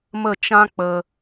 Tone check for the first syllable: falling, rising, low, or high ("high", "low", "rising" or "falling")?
falling